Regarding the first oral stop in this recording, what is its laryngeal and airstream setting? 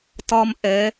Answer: plain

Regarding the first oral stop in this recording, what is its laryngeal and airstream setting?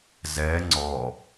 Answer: click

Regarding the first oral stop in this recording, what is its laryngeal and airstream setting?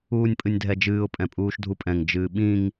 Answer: ejective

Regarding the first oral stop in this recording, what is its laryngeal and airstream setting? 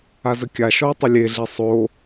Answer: plain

